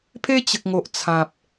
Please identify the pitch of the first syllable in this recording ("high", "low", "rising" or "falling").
high